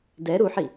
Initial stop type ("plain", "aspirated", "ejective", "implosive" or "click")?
plain